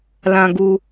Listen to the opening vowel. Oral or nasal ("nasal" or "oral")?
nasal